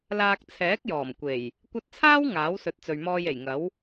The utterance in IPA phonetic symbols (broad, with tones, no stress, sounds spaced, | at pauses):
l aː˧ k̚ t͡sʰ ɛː˨˥ k̚ j ɔː˨˩ m kʷ e˨˩ j | kʷ ɐ˧ t̚ t͡sʰ aː˥ w ŋ aː˨˥ w s ɵ˨˥ t̚ t͡s ɵ˨ ɥ m ɔː˧ j e˨˩ j ŋ ɐ˨˥ w